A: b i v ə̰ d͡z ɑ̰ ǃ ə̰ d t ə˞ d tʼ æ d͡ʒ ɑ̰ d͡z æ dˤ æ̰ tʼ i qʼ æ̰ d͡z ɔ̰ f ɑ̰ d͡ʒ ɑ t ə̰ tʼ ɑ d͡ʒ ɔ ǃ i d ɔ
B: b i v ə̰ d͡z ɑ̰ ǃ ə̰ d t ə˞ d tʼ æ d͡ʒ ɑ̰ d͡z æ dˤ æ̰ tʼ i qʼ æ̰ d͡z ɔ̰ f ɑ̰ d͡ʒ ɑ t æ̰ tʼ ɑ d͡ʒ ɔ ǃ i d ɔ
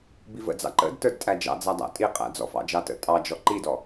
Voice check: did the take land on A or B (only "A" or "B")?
A